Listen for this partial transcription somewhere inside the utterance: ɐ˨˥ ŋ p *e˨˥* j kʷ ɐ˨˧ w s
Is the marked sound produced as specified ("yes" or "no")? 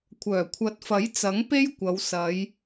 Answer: no